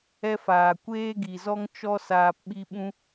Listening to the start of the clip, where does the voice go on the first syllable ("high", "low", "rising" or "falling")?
high